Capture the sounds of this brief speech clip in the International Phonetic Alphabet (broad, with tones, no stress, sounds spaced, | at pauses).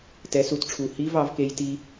t ɛ˨˦ s u˨˦ t ʈ͡ʂʰ u˨˩ h i˦˥ v ɑ˦˥ v k e˦˥ j t i˦˥